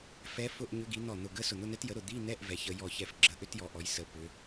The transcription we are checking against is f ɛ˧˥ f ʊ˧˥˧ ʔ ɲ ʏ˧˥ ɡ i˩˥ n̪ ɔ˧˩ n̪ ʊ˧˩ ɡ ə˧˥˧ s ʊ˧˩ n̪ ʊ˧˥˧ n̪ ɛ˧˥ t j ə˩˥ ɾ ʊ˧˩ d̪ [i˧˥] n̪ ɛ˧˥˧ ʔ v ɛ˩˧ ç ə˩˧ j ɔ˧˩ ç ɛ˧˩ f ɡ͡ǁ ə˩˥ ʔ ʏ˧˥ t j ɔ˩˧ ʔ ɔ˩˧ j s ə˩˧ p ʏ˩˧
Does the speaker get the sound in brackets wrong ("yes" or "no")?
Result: yes